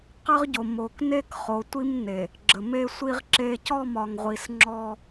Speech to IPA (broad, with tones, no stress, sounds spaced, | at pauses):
q ə˦ ʁ ɟ o˨ m o˨ k n e˦ k χ o˨ tʷ i˦ m n e˨ | ɡ͡ǁ ə˨ m e˦ sʷ i˦ ʁ ǁ e˦ c ɔ˦˨ m ɒ˨ ŋ ʁʷ i˨ s ŋ͡ǁ ɔ˦